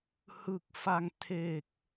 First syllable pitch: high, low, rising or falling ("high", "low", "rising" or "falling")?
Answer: low